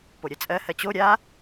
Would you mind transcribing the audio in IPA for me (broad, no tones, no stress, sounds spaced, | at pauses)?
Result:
p o ɾʲ ɜ t͡sʼ ɜ h ɜ t͡ɕ o ɾʲ a